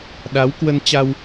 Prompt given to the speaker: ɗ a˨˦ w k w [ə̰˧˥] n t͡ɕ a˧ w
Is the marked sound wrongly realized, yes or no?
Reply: yes